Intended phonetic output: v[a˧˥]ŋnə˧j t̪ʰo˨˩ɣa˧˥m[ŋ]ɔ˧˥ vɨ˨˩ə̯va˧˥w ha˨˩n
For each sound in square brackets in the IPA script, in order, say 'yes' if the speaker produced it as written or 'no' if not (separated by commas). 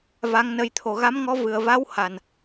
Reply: yes, yes